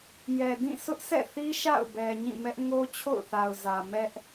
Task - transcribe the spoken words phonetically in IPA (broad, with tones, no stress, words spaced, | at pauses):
jɛ˨dĩ˦˨ sʊ˦ʔsɛ̰˦˨θi˦ ʃa̰˦˨ʊ̯ bɛ˨ɲĩ˦˨mɛ˦ʔ ŋo˦t͡ɕʰo̰˦˨ʊ̯θa˨ʊ̯zä˨ mɛ˦ʔ